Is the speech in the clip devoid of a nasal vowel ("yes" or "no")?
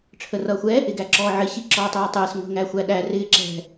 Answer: yes